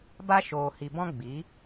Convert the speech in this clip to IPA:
b a˧ ʃ oː˨ h i˨ b ɔ̃˧ ɡ͡b i˨˦

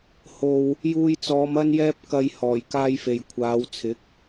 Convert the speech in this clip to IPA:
h o˨ w | j uː˧ j t͡s ɔː˨˧ m ɐ˥ n j ɛː˥ p̚ k ɐ˧ j h ɔː˨˩ j k aː˥ j f e˨ j kʷʰ aː˨˧ w t͡sʰ ɪ˨˥ k̚

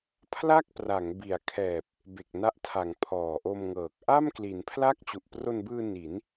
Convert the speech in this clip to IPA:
pʰ l a˥˩ k̚ p r a˩˦ ŋ b i˩˦ a̯ kʰ ɛː˨˩ p̚ | b e˨˩ k̚ n a˦˥ ʔ tʰ a˩˦ ŋ pʰ ɔː˨˩ ʔ o˧ m ŋ ɤː˨˩ k̚ ʔ a˥˩ m k l i˩˦ n pʰ l a˥˩ k̚ t͡ɕ u˨˩ ʔ p r o˧ n b ɯː˧ n i˩˦ n

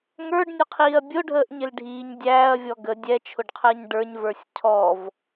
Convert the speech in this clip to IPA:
ŋ ə˞ ɖ nʲ ʊ qʰ iː ɐ̯ bʲ ʊ ɖʱ əː ʔ ɲ ɪ l ɖʱ iː ɲ dʲ æː ɐ̯ vʲ ɔ ɡ ə dʲ ɛ t͡ʃʰ ʊ ɖ qʰ əː ɲ ɖ ə˞ ɲ v ə˞ sʲ cʰ ɔ v

